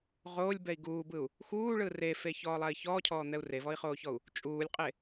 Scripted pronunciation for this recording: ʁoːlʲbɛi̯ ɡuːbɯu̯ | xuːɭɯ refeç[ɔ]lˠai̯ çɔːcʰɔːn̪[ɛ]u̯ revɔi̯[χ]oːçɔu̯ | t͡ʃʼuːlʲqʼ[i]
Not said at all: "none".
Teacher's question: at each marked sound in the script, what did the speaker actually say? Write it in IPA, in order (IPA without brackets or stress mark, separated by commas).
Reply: ɔː, ɛ, χ, e